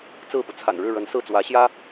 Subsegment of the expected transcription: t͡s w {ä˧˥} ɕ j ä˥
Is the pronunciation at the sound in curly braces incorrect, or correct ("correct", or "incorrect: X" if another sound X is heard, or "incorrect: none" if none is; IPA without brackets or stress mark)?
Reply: correct